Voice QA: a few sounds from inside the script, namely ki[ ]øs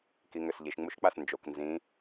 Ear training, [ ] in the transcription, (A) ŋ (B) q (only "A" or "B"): A